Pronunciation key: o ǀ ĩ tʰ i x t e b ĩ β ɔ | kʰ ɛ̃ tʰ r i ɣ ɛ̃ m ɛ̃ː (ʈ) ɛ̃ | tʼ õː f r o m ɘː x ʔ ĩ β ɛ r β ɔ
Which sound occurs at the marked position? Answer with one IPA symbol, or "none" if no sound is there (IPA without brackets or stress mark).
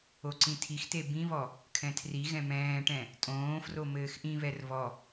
ʈ